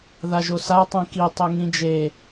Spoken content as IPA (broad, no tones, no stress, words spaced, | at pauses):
ðaʒosa tˤĩkitˤɛ ŋĩd͡ʒe